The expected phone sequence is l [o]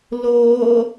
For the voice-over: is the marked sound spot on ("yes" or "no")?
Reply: no